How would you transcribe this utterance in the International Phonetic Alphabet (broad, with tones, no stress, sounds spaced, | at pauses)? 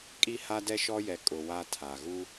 kʼ i˦ h a˦ d ɛ˦ ʃ ɔ˦ j ɛ˨ kʼ ʊ˨ w a˦ tʰ a˨ ɣ u˦